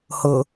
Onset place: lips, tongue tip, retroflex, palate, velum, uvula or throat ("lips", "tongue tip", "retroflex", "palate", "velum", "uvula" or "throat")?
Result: throat